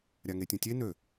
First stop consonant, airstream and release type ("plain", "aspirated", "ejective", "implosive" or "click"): plain